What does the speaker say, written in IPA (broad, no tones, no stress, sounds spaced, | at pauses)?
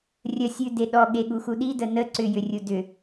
rʲ ə sʲ ʉ d e ɗ ɔ ɠ e ɠ u x u ɗ i d ə n ə ǀ ʏ j ʏ rʲ u d ʏ